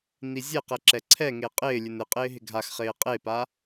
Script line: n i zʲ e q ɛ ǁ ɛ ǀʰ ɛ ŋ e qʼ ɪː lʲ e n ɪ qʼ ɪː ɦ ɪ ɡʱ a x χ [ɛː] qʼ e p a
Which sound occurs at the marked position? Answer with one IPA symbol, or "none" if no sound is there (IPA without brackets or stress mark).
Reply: ɪː